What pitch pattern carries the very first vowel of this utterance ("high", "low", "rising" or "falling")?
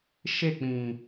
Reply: falling